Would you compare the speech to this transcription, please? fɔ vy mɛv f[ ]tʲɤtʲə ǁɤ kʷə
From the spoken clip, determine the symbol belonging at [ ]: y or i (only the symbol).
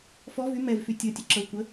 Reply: y